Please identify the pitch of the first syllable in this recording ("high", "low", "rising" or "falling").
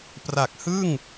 low